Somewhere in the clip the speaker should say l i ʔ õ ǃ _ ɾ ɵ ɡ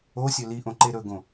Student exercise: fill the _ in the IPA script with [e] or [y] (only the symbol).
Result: e